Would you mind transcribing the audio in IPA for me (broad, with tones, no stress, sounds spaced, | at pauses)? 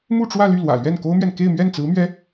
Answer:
m u˥˧ ʈ͡ʂ w ä˥˧ l y˥˩ l w ä̰˨˩ l ɥ ɛ˥˩ n k o˥ ʊ̯ m ɥ ɛ˨ n k e˥˧ ɪ̯ m ɥ ɛ˥˩ n t͡s ɹ̩˧˥ m ɥ ɛ˧˥